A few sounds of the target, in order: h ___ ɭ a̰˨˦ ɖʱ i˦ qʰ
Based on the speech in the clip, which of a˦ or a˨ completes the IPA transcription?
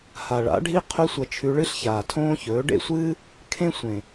a˨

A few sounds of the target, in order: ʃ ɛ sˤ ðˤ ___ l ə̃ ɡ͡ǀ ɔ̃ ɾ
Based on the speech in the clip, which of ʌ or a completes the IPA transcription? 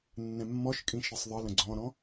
ʌ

